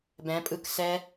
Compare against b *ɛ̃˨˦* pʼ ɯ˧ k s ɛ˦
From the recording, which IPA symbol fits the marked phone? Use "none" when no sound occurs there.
ɛ̃˨˦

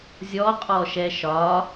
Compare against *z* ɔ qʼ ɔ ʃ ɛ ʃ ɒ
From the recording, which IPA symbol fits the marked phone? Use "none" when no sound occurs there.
zʲ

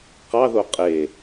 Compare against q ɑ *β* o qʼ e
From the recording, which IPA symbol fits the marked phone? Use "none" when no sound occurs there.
ð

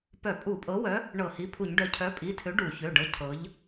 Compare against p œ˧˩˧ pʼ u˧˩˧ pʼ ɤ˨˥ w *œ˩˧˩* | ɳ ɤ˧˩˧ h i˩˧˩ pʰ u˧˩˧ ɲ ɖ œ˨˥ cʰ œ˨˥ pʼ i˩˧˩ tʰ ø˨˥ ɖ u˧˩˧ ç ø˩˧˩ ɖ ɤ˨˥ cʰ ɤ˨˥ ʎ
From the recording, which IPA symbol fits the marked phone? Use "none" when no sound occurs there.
œ˨˥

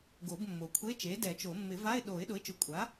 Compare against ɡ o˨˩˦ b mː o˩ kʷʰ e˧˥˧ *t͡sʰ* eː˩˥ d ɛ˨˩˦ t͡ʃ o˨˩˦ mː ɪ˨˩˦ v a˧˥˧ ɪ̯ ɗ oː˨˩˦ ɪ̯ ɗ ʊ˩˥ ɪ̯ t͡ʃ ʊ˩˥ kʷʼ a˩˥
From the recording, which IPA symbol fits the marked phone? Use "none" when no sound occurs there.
t͡ʃ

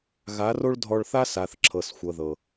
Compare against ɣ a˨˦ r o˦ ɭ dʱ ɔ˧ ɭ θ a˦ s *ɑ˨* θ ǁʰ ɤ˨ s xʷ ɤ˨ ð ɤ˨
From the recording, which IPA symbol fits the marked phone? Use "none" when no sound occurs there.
a˨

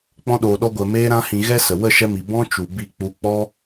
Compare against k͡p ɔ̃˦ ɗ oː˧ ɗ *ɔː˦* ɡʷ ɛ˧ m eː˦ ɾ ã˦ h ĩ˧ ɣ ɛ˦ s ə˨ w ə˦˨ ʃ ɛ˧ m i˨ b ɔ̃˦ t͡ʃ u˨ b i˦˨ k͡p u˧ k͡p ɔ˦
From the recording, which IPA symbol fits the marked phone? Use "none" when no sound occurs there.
ɔ˦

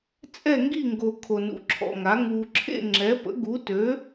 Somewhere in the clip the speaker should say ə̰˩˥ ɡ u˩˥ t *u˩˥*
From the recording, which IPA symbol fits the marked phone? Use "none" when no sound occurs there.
ø˩˥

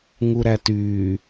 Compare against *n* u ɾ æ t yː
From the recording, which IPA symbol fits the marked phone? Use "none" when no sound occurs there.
ŋ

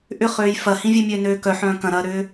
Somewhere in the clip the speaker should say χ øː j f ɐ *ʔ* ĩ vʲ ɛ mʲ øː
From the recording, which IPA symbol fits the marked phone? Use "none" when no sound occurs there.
h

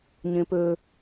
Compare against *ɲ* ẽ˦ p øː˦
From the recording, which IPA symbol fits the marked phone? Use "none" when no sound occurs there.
ɲ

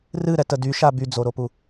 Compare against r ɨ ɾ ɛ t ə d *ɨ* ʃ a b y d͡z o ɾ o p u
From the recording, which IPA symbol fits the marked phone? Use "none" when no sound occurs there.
y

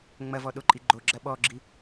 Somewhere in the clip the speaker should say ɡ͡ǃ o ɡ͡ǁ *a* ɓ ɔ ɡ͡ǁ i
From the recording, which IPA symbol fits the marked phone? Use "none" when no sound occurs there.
ɐ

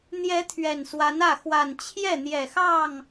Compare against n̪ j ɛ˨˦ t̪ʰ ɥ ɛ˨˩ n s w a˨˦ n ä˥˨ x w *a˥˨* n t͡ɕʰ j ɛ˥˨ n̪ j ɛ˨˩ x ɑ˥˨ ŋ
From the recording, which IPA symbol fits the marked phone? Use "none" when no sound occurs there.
a˨˩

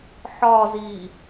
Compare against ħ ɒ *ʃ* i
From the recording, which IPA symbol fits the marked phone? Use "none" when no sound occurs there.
z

